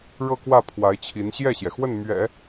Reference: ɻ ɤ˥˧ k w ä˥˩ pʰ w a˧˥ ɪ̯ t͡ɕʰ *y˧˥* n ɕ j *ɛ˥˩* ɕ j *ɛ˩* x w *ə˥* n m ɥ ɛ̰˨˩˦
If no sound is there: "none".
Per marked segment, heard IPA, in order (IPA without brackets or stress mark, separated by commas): i˧˥, ɛ˥˩, ɛ˩, ə˥˩